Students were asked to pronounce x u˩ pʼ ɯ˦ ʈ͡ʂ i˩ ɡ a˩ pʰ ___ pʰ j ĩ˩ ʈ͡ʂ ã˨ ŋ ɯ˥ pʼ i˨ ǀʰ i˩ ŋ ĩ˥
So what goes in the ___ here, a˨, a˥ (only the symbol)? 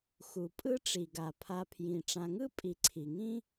a˨